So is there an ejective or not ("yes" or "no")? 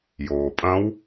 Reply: yes